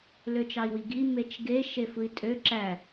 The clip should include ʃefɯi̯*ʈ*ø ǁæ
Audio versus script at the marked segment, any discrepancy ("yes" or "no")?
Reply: yes